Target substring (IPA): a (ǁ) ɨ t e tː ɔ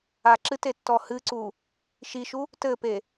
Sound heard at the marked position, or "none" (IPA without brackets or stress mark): ǁ